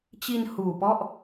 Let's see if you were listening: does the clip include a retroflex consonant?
no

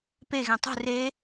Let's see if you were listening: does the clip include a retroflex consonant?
no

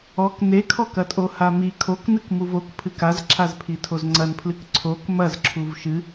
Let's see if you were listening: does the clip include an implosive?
no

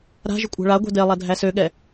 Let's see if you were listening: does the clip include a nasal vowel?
no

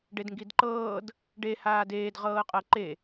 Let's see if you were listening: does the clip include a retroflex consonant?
yes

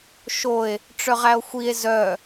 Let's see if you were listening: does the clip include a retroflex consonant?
yes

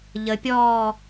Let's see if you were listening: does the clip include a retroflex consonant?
no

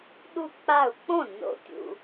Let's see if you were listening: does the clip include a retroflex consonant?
no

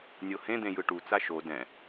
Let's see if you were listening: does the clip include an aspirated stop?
no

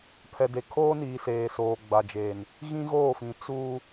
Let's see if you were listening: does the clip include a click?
no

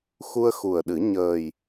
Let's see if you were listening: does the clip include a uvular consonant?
no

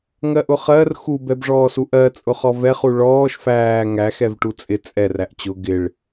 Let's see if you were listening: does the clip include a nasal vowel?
no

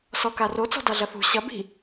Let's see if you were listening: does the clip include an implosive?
no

